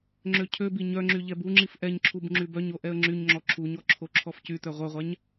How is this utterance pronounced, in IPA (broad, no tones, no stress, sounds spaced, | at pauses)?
ŋ͡ǁ ø cʰ ø b i ɲ œ ŋ͡ǁ y ʎ ɛ b u ŋ͡ǁ i f ʔ ɛ ɲ ǁʰ u b ŋ͡ǁ y b œ ɲ o ʔ ɛ ə̯ ŋ͡ǁ y ɲ ŋ͡ǁ ɔ ǁʰ u ɲ ɔ ǁʰ o ǁʰ ɔ f c y t œ ʁʷ œ ʁʷ a ɲ